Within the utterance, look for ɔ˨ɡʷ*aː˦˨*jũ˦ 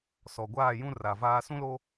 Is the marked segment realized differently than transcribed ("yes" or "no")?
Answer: no